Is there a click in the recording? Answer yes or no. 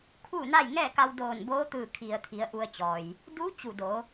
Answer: no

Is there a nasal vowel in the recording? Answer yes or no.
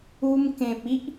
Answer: yes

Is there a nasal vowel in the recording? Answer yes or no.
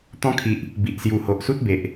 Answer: yes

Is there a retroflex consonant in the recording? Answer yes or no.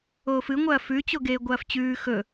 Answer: no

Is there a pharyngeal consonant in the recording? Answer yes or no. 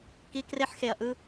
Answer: yes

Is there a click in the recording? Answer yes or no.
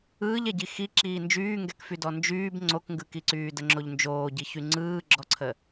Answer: yes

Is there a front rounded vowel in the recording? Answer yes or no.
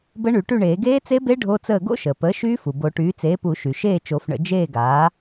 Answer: yes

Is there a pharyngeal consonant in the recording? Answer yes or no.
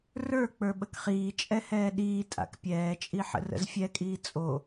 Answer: yes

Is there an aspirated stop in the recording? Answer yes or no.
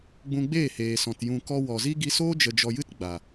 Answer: no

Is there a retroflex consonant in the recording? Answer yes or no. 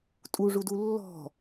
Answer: yes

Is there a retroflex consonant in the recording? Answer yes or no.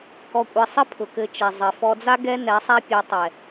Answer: no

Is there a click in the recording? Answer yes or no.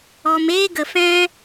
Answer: no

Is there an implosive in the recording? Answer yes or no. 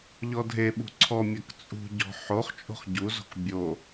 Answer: yes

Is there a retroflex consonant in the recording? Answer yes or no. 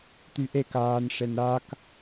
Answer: yes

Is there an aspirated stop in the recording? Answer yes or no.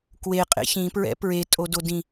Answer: no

